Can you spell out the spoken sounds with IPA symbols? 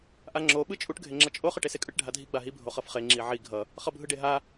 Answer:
ʔ a ŋ͡ǁ o ɓ ɯ t͡ʃʼ u ʈ ɡʱ e ŋ͡ǁ ʌ t͡ʃʼ o χ ɯ ʈ e s e kʼ ɯ ʈ ɖʱ a dʱ i ɡ͡b a ɦ i bʱ o χ ʌ f χ e ŋ͡ǁ i ʕ i ɡʱ ʌ | χ ʌ bʱ ɯ ɖ e ɦ a

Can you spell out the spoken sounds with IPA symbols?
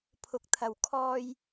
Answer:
pʰ ʊ˨˥ k̚ t̪ʰ ɐ˨ w kʰ ɔː˧ j

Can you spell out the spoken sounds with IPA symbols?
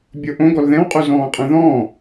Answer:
bʲ o ʔ õ ɡ ɔ l ð ɛ̃ w qʼ u z ɔ̃ː qʼ ɛ̃ ð ɔ̃ː

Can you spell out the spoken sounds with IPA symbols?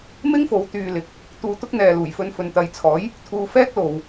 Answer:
m ɪ˥ ŋ f o˨˧ w t̪ yː˧ l ɪ˨ k̚ | t̪ uː˧ t̪ ʊ˥ k̚ n̪ ɛː˨ l uː˨˩ j f ɵ˧ n f ɵ˨ n t̪ ɐ˨˧ j t͡sʰ ɔː˨˥ j | t̪ʰ uː˧ f ɛː˥ k̚ l o˨ w

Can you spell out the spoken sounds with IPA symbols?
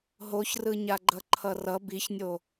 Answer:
ɦ o ç r ɯ ɲ a ɡ͡ǃ ʌ ǃʰ ʌ r ʌ b i ç nʲ o

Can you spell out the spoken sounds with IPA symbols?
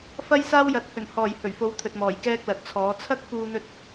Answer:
f ɐ˥ j s aː˥ w j ɐ˨˥ t̚ h ɵ˨˩ n h ɔː˨˩ j h ɵ˨˩ ɥ f o˨˥ w t̪ʰ ɵ˨ t̚ m ɔː˨˩ j k ɛː˥ k̚ l ɐ˨ t̚ t͡sʰ ɔː˨˥ t͡sʰ ɐ˥ k̚ f uː˧ n̪ ɵ˧ t̚

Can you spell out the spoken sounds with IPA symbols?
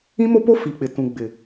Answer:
ĩ˦ m o˦ p o˦ f i˨ k͡p ɪ˨ t ũ˨ ɡ͡b ɪ˨

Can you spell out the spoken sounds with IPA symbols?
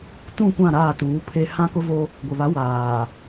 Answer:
t ũ˦˨ kʷ ã˦˨ ɾ aː˦˨ t uː˨˦ pʰ e˦ h ã˦ k ʊ˦ v o˦ | ɡʷ ɪ˨ β a˨˦ w aː˨

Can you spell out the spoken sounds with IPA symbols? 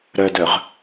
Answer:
ɾ œ d œ ʁ

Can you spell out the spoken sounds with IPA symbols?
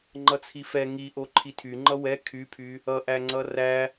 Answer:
ŋ͡ǃ ʌ t͡sʰ i f ɛ ŋ i ʔ o ǃʰ i tʰ y ŋ͡ǃ ʌ w ɛ kʰ y pʰ y | ʌ ʔ æ ŋ͡ǀ ʌ r æ

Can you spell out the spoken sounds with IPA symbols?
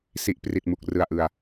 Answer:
s i˦˥ ʔ p r i˨˩ t̚ m u˨˩ k̚ r ɯ˨˩ a̯ ʔ ɯ˨˩ a̯

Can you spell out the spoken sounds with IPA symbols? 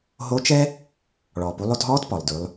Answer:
ɦ o˧˥ t͡ʃ ɛ˥ | ɭ ɔ˩ p u˩˧ lˠ o˧ t ɦ ɔː˧˥ t p ɔ˩ lˠ d ʉ˩˧ lˠ

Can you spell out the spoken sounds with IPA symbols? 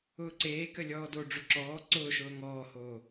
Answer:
ʊː ǀ eː k ə lʲ ɔː d o ɖ͡ʐ ʊ ǁ ɔː ǀ ʊː ʃ ʊː ŋ ɔː h oː

